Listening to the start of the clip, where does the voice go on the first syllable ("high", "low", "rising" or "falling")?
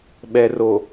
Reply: low